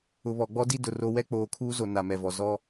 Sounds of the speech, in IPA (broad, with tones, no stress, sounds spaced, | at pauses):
ʊ˨ β ɔ˨ ɡ͡b ɔ˦ d i˦ d ʊ˨ r o˦ w ɛ˦ k͡p oː˨ kʰ uː˦ z o˨ n a˨ m ɛ˨ v ɔ˨ z ɔ˦